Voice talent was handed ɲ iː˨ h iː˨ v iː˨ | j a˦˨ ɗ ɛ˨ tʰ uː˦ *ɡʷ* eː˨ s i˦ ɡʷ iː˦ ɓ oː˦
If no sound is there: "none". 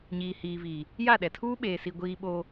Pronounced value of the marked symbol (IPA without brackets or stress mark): ɓ